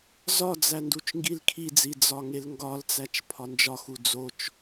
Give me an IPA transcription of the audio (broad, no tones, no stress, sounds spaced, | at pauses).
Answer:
z ɒ d͡z æ n d u t͡ʃ ŋ ɡ i l kʰ i d͡z i d͡z ɒ ŋ e l ŋ ɡ ɒ l t͡s æ t͡ʃ pʰ ɒ n d͡ʒ ɒ x u d͡z o t͡ʃ